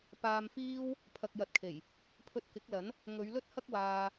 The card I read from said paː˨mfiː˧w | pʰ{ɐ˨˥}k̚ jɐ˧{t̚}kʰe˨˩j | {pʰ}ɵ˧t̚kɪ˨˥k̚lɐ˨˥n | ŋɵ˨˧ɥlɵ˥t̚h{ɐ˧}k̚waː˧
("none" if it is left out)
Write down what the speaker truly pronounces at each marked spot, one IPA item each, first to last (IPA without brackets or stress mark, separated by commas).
ɐ˨, t̚, pʰ, ɐ˥